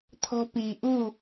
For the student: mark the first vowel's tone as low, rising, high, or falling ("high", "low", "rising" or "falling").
high